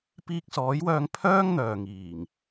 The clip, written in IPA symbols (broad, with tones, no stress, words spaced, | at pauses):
piː˧k̚sɔː˨˥jwœː˧ŋ pʰœː˥ŋn̪œː˨ŋiː˨˩ŋ